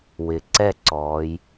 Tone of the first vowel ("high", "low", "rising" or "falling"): low